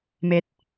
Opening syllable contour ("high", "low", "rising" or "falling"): low